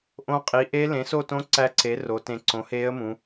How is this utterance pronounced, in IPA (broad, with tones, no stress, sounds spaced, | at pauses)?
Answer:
ʔ õ˧˥ qʼ i˩˥ ʔ e˧˥ l ẽ˩˥ s o˦˨ t õ˧˥ ǀ æ˧˥ ǀ e˩˥ r o˩˧ t ẽ˨˩ ǀ õ˩˥ h eː˧˥ ə̯ m ũ˩˧